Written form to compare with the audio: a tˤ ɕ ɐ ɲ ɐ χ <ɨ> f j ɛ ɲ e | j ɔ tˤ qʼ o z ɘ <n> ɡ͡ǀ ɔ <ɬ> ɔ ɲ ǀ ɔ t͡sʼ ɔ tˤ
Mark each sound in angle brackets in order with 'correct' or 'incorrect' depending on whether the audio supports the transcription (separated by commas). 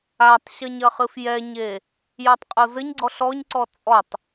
correct, incorrect, correct